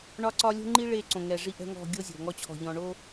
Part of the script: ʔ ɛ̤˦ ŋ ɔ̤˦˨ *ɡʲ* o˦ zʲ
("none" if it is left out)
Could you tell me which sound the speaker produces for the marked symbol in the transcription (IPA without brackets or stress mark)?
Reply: ɡʲ